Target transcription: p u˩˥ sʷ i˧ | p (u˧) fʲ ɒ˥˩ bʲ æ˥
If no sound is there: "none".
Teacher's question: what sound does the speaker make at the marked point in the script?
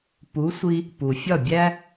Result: u˩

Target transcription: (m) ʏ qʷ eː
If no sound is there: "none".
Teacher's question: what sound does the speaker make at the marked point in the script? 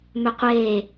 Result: m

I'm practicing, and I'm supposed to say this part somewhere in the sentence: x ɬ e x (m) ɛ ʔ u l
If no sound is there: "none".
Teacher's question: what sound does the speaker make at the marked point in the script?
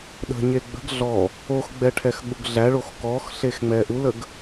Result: ŋ͡m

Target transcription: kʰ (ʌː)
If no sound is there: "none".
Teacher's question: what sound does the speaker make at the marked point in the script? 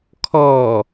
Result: ɔː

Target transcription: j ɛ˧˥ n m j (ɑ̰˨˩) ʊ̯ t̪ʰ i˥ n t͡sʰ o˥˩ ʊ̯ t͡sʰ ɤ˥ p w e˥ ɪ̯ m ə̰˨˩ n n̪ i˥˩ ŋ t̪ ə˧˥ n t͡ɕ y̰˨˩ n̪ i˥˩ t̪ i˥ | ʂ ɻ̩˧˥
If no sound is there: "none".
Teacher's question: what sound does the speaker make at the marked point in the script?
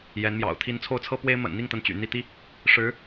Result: ɑ̰˨˩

